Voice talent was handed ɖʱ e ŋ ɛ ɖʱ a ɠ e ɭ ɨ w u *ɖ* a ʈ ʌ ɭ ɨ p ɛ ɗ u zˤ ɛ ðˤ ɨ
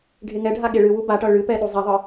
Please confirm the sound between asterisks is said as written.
no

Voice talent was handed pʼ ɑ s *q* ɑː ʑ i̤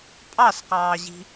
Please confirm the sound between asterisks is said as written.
yes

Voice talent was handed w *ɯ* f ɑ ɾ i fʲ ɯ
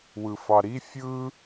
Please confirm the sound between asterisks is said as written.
yes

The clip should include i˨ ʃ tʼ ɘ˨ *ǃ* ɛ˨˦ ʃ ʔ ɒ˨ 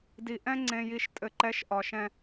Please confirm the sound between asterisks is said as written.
yes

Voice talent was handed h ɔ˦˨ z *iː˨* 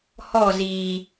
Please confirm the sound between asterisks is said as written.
yes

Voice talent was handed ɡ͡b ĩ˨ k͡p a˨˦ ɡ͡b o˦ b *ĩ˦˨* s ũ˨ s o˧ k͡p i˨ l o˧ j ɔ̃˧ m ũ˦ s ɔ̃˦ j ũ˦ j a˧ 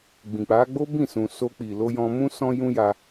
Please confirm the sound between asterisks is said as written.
yes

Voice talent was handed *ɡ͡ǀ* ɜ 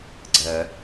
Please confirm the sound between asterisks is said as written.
yes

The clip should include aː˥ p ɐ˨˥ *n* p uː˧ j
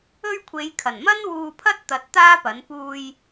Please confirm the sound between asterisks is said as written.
yes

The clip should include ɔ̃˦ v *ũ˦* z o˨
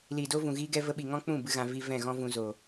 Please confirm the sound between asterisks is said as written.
no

